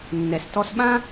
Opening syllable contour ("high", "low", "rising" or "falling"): low